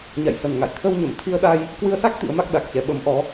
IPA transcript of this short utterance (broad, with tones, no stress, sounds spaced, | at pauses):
ɲ a̰˧˨ j s ə˨˩ n ŋ a̰˧˨ j t̪ʰ ə˧ w ɲ ə˧˩ m t̪ʰ i˧ ə̯ ɗ a˧ j | k w ɨ˧ ə̯ s a˦˥ k̚ t̪ ḭ˧˥ ə̯ m a˦˥ k̚ ɗ a˨˩ k̚ t͡ɕ ɛ˨˦ ɓ ə˨˦ m ʔ ɔ˨˦